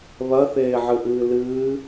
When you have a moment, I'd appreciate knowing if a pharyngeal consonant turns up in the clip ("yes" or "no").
yes